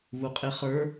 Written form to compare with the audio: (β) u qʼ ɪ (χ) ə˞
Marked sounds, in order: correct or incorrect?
correct, correct

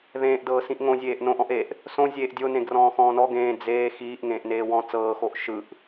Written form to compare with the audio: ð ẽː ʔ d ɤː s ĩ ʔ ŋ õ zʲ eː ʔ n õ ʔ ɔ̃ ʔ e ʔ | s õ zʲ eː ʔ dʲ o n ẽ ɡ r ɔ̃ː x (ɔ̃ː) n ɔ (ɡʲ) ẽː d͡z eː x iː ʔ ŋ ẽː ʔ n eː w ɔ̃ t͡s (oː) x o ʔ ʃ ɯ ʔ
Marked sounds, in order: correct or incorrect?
correct, incorrect: ɡ, incorrect: ɤː

